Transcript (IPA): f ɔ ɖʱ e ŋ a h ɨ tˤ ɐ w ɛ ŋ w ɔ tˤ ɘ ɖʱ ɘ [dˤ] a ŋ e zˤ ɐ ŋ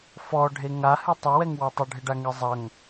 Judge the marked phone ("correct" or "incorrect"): incorrect